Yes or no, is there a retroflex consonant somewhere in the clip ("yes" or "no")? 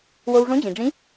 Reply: yes